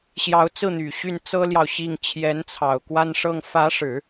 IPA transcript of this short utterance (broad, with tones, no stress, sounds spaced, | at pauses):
ɕ j ɑ˧˥ ʊ̯ t͡s ɹ̩˥˩ n̪ y˨˩ ɕ y˥˩ n t͡s ɤ˥ l j ɑ˨ ʊ̯ ɕ i˥˩ ŋ t͡ɕʰ j ɛ˧˥ n t͡sʰ ɑ˨˩ ʊ̯ k w a˥˧ n ʂ ɤ˥˩ ŋ f ä˧˥ ʂ ɻ̩˨˩˦